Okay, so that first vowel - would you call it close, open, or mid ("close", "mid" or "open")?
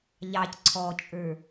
open